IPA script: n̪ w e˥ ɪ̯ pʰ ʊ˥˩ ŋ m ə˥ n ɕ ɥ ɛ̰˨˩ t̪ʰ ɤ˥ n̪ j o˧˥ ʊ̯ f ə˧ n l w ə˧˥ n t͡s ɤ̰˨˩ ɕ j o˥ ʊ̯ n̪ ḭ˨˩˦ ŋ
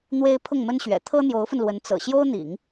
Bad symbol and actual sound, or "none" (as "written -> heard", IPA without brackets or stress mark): none